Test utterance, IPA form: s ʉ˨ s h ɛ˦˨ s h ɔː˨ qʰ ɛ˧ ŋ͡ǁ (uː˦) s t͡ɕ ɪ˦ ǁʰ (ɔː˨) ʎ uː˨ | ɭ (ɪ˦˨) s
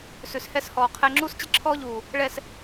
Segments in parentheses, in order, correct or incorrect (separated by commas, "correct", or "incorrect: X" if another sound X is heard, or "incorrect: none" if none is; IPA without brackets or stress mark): correct, incorrect: ɔː˦, incorrect: ɛ˦˨